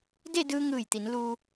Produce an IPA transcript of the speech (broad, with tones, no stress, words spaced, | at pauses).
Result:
de˥˨dɯː˧ ŋɯː˧˩jt̪i˩˧n luː˧